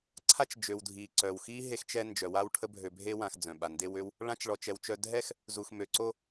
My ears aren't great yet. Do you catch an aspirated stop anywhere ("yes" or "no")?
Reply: yes